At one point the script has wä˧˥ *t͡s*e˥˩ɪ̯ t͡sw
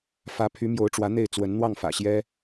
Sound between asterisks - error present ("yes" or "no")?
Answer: yes